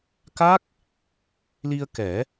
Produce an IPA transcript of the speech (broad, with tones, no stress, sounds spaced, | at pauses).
k a˦˥ k̚ | l i˧ ə̯ k ɛ˨˩˦